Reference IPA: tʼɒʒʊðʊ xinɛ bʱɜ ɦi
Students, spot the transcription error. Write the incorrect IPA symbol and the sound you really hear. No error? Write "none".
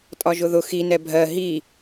none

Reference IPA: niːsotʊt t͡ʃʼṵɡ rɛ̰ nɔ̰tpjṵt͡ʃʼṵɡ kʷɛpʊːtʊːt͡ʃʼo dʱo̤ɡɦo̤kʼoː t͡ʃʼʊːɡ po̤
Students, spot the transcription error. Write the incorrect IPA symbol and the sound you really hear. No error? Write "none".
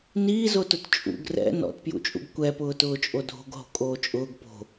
s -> z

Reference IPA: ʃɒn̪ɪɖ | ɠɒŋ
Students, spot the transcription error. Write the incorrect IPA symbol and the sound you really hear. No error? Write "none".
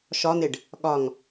none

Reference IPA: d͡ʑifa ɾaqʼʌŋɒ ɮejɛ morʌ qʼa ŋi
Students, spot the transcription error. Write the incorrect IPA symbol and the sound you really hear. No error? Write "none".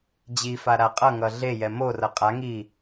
ɒ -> ʌ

